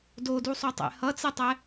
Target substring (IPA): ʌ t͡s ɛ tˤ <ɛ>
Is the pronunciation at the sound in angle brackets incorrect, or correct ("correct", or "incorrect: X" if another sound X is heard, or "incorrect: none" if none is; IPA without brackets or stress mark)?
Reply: correct